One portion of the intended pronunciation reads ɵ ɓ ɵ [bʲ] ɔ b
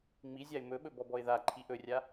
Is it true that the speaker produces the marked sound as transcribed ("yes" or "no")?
no